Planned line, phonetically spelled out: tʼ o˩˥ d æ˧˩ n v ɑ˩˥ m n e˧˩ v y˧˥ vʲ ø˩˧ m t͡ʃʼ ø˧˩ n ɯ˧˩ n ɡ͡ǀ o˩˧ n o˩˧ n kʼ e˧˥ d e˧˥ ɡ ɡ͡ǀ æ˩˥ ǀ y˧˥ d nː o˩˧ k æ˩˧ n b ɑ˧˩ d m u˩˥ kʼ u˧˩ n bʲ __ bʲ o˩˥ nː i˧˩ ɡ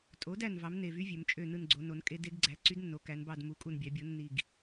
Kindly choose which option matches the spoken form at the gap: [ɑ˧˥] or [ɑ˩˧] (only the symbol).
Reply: ɑ˩˧